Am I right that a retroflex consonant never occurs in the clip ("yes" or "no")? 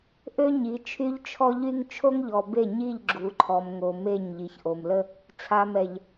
yes